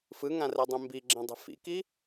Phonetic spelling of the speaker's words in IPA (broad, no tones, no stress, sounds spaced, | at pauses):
f ɯ ŋ ã r ɛ dˤ ẽ m b i ɡ͡ǁ ẽ dˤ e̤ f ḭ k i